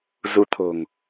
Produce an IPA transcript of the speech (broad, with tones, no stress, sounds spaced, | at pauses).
z u˧ t̪ʰ o̤˨˩ ŋ